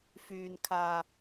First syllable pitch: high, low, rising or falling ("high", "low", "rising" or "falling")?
low